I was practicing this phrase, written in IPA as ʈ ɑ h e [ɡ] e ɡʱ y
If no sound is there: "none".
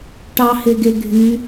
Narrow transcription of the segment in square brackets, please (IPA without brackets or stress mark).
ɡ